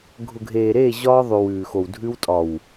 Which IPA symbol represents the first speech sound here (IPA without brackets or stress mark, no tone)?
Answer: ɡʱ